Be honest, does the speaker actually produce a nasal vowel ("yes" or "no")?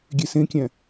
yes